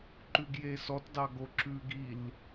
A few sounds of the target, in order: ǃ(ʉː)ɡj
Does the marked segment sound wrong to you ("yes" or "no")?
yes